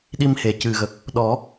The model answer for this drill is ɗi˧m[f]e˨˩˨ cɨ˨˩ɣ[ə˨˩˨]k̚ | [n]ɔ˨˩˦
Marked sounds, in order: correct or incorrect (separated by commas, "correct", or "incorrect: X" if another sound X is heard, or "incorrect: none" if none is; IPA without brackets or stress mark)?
incorrect: h, incorrect: ə˨˩, incorrect: ɗ